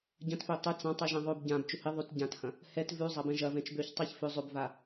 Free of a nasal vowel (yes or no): no